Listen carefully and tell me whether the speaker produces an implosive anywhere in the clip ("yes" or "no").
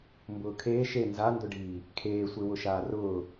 no